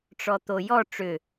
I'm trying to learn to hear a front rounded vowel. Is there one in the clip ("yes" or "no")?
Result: yes